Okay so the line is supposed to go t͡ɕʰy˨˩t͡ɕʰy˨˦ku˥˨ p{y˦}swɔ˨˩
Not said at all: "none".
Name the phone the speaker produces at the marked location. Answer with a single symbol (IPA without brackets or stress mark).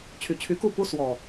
u˦